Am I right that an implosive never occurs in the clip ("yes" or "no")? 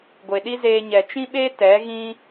no